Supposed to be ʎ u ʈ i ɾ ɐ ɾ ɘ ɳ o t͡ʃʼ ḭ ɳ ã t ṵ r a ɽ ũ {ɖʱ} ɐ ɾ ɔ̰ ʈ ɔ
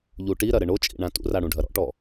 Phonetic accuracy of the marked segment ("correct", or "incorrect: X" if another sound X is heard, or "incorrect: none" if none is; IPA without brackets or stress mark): correct